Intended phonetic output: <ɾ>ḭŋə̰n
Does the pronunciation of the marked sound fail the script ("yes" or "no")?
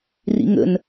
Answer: yes